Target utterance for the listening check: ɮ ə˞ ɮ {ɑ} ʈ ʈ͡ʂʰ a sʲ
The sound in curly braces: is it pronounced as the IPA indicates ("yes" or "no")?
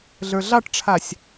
yes